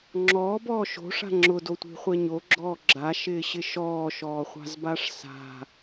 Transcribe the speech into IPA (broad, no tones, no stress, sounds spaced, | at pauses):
ŋ͡ǁ ɔː b ɔː ʃ o̤ ʂ a̤ ŋ͡ǁ ʊ d o tʷ i̤ χʷ ɛ ɲ o ɡ͡ǁ ɔː ɡ͡ǁ a ʃ ɪː ɕ ɪ ʃ ɔː ʃ ɔː χʷ a̤ z b a ʂ s a̤